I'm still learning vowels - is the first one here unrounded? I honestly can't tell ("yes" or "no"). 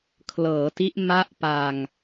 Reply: yes